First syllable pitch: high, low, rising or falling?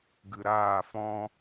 low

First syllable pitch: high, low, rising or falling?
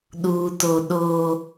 high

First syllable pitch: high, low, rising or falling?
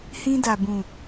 high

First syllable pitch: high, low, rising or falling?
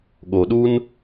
low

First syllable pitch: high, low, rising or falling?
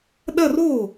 falling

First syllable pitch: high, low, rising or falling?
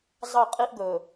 falling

